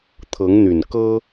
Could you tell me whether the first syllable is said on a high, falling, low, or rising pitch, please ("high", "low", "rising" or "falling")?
rising